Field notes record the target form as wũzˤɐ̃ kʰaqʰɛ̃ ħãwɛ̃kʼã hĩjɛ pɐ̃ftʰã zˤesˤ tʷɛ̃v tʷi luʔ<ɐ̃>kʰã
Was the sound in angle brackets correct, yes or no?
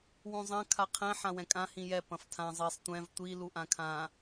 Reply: no